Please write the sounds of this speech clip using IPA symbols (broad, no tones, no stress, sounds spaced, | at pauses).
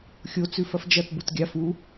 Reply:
xʲ o t͡s ʉ f ɐ f d͡ʒ ɐ t b u t ɡʲ a f u